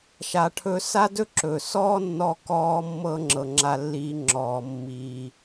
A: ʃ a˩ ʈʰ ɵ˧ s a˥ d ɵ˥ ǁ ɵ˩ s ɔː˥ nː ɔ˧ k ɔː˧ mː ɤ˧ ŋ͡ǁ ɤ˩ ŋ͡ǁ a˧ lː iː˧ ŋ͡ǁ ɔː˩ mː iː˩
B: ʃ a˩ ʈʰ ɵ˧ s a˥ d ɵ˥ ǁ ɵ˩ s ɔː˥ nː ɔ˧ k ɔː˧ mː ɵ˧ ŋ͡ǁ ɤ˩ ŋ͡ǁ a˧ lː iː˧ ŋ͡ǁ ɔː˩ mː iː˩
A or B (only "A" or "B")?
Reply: A